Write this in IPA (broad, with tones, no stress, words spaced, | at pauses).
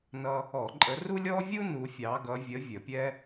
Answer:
nʌ˥ | ɔ˧˩˧ǃʼə˨˦ru˥lʲɔ˥ vʲu˥ nu˨˦fʲɑ˨˦ɡʌ˨˦ vʲə˨˦ vʲə˧˩˧pʲɛ˥